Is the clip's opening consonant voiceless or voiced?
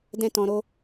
voiced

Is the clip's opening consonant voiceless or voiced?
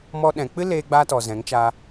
voiced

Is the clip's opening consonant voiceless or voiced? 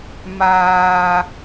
voiced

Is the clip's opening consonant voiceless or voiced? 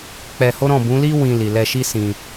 voiceless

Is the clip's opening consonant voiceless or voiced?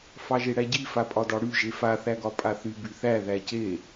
voiceless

